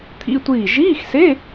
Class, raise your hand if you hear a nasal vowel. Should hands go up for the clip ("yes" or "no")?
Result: no